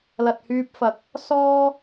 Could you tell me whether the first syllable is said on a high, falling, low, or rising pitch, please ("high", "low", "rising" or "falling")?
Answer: low